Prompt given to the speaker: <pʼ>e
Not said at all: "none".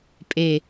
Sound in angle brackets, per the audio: pʼ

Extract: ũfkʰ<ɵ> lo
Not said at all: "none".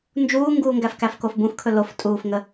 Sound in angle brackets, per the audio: ɵ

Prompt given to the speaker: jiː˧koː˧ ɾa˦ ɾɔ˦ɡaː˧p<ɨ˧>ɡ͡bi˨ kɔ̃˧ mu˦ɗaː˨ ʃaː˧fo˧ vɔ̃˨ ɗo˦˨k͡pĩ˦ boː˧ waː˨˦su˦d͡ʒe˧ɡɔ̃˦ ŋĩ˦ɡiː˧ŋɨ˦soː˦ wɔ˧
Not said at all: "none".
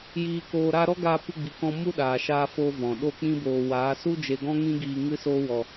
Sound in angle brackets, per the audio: ɨ˧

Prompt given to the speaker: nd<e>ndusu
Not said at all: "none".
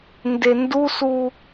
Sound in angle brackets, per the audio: e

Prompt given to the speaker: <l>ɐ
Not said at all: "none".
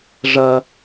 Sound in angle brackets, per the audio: ʐ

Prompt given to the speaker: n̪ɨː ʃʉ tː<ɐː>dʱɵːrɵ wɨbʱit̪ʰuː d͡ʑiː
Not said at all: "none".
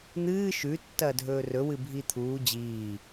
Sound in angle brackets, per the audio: ɐː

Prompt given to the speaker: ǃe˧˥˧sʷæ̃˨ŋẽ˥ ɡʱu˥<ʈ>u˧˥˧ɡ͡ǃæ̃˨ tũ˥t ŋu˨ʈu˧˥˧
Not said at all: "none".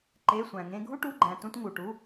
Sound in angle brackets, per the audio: ʈ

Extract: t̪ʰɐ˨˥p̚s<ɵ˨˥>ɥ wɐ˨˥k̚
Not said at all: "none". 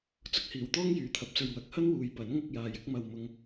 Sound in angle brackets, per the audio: ɵ˨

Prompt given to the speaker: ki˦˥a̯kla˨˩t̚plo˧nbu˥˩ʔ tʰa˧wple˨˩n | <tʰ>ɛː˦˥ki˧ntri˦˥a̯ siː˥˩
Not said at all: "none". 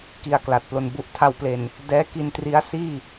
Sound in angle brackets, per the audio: d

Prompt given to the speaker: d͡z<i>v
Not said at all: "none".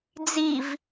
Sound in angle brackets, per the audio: i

